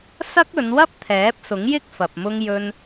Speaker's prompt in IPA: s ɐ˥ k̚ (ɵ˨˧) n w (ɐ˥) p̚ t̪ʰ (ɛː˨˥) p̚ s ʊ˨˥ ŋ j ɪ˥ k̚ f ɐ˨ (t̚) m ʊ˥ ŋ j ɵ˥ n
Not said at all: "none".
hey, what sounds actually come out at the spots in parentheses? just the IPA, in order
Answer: ɵ˨˧, ɐ˥, ɛː˨˥, p̚

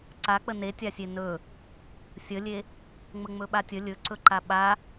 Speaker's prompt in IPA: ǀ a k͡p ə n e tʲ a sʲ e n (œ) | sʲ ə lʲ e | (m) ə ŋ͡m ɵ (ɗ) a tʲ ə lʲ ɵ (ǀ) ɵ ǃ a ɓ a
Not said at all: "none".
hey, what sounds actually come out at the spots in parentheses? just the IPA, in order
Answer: ɵ, ŋ͡m, ɓ, ǀ

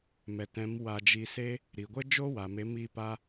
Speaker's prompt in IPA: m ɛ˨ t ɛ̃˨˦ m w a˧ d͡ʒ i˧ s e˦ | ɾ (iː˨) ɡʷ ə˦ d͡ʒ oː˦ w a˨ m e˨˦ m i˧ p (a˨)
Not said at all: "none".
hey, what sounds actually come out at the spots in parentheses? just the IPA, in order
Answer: i˨, a˦

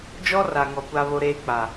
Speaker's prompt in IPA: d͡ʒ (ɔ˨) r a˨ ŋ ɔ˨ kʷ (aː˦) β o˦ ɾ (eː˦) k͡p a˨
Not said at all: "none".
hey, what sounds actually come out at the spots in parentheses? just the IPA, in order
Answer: ɔ˦, a˦, eː˦

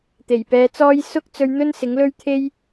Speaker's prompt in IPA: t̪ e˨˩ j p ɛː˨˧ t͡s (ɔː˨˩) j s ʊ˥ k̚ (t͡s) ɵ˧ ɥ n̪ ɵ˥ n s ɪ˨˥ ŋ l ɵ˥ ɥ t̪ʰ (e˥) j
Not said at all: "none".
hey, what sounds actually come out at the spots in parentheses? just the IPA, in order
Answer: ɔː˥, t͡s, e˥

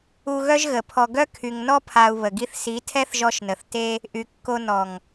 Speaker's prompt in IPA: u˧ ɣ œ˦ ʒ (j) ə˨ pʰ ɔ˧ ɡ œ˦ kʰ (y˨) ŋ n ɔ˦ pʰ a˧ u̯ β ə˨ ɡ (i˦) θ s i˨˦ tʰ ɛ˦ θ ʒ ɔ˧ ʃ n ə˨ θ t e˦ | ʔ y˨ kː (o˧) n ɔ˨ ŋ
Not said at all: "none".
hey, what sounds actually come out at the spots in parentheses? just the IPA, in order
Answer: ɣ, y˨, i˦, o˧

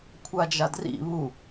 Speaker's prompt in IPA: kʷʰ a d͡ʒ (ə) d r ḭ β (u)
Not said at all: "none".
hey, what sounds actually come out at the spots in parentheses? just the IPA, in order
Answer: a, u

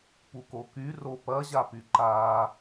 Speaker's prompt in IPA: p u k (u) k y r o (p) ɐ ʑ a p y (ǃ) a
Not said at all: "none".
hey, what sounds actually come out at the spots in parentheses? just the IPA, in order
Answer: o, p, ǃ

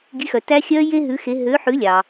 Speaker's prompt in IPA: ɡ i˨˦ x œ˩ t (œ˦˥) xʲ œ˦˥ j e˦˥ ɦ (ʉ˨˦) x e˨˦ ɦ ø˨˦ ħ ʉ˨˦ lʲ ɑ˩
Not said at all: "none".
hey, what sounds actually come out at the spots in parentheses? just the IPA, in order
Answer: æ˦˥, ʉ˨˦

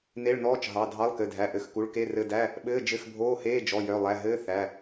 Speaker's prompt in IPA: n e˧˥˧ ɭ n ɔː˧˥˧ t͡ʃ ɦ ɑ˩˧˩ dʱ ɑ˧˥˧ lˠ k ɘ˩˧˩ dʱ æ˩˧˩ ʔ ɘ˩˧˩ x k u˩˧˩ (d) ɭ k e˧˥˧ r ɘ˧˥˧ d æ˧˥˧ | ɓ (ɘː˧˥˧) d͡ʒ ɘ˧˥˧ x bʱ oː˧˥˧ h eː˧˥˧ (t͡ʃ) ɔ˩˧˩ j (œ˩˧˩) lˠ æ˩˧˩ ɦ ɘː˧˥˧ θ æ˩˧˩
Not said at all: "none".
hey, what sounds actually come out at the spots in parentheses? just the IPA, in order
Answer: none, ɘː˧˥˧, d͡ʒ, œ˩˧˩

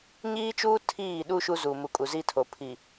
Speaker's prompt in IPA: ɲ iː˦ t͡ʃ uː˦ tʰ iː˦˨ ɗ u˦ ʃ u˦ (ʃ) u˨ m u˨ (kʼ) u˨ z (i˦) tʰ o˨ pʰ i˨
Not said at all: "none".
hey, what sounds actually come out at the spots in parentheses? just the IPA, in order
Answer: z, kʼ, i˦

